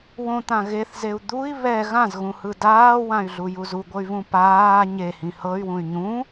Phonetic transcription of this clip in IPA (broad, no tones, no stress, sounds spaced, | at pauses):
w õ t̪ ã ɣ e θ z e u̯ d̪ u i̯ β ɛ ɣ ã z ɣ ũ h ɯ d aː w ã y̯ ɮ u j u z u ɡʷ ɤ y̯ v ũ p aː ɲ e h ĩ h ɤ y̯ w ũ y̯ ɲ ũ